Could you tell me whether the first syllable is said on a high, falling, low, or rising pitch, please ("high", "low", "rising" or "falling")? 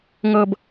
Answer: low